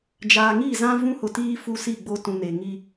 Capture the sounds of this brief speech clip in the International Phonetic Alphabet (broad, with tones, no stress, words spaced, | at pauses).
d͡ʒaː˨ŋi˦˨zã˦ vũ˦hʊ˨tiː˦ fu˦si˦˨ɡ͡bo˦ tũ˨ne˨ ŋi˦